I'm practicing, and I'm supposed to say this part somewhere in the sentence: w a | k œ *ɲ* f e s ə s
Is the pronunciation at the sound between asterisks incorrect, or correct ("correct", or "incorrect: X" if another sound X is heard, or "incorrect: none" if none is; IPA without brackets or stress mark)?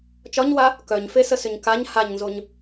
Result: correct